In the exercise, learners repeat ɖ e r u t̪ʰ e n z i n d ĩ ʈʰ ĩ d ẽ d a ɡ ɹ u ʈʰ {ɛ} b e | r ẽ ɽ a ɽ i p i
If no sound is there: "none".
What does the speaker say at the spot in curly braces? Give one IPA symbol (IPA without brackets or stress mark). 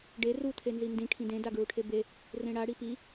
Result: e